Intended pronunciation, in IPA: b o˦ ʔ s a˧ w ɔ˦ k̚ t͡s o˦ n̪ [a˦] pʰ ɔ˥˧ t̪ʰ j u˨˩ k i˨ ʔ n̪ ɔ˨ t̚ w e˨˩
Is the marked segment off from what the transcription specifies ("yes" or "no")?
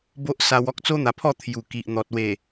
yes